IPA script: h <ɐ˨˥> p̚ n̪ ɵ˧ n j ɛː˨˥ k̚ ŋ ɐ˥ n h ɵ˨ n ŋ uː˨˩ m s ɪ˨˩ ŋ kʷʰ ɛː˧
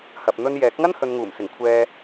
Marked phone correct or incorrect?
incorrect